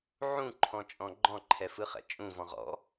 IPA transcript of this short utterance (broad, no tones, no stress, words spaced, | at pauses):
ʕũǃʰɔ̃t͡ʃʼɔ̃ ɡ͡ǃɔ̃ǃʰɛfɯχɛ̰ t͡ʃʼũvɔ̃ʁ ɔ̰